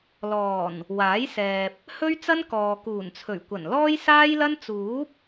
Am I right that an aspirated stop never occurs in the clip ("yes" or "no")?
no